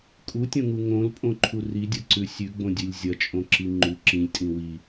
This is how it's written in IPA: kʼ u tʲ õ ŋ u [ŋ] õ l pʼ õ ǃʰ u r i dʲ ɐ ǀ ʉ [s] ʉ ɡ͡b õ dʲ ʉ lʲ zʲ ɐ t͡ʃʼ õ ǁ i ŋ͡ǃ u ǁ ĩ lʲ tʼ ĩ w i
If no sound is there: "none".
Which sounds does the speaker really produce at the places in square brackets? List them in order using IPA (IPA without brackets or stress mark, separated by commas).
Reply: ŋ, sʲ